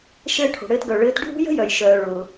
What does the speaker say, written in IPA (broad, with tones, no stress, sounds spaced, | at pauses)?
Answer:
ʃ ɘː˧ ʈʰ o̤˩ ɽ ɘː˧ t ɡ œ˩ ɭ ɘː˧ t ɖʱ ṳ˥ j ə̤˥ j œ˩ j ʃ œː˩ ɭ ʊː˩